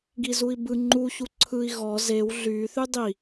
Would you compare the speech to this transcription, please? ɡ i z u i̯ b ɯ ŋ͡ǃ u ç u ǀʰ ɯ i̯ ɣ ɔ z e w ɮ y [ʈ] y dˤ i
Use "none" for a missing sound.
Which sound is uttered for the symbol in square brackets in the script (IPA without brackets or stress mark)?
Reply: θ